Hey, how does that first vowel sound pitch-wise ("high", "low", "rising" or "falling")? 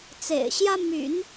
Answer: low